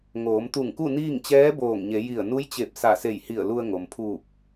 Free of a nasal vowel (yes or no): yes